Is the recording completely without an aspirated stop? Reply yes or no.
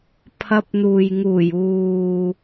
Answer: no